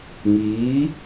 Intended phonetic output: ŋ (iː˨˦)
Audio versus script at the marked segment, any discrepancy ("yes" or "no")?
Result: no